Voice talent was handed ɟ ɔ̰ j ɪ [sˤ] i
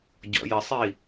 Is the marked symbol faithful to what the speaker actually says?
yes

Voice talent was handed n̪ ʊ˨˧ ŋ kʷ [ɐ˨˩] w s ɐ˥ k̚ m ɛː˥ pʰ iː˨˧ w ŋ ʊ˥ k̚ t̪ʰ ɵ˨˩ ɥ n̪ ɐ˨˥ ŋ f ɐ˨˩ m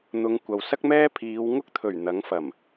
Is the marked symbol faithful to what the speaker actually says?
no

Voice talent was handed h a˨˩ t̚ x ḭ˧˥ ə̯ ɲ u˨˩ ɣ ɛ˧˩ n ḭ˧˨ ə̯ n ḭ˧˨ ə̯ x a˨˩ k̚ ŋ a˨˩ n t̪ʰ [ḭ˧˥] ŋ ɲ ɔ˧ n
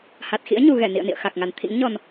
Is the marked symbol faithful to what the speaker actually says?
yes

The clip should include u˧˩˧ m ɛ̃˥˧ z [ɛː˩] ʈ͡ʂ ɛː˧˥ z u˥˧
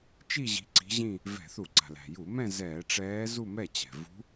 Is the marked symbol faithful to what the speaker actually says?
no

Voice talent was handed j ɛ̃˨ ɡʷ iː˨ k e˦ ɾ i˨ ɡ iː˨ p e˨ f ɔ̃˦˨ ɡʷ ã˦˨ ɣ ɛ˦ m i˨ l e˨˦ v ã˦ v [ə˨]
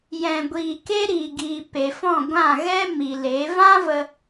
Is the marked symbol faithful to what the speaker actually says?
no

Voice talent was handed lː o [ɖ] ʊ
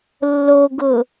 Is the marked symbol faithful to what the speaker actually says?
no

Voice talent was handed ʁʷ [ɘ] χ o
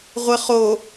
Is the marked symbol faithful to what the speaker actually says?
yes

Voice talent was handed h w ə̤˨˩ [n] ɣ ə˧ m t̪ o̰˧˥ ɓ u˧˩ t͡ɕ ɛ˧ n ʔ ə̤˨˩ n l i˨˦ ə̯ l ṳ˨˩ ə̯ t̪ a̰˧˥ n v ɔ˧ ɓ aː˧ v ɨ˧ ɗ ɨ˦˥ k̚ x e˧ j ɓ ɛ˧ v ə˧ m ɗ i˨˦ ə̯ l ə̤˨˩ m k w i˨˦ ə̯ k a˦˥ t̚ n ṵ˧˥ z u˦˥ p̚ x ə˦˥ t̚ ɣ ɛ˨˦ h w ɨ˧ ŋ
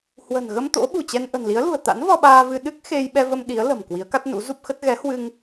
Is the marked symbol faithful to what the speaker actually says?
yes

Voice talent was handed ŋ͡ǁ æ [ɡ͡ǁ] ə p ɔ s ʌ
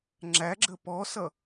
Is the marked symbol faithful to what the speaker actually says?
yes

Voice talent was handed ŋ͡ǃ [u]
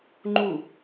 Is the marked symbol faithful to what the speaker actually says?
yes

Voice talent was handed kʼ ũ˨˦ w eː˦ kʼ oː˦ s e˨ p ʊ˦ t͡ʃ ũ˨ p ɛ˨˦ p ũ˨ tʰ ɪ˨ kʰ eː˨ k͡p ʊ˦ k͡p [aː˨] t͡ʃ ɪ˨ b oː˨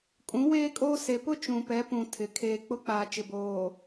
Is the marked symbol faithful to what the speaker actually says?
yes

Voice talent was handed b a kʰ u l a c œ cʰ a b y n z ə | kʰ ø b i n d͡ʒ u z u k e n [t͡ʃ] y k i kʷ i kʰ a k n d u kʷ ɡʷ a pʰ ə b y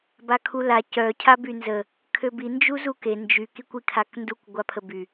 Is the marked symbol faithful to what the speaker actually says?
no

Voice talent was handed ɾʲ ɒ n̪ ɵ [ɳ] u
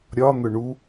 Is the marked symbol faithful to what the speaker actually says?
yes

